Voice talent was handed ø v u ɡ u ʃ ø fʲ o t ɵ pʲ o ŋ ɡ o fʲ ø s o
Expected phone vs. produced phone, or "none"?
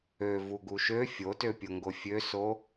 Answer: ɵ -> ø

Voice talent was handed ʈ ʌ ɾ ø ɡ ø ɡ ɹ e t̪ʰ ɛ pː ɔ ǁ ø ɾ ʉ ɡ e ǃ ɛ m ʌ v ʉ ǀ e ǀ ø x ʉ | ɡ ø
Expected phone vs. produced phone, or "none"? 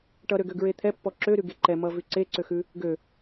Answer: none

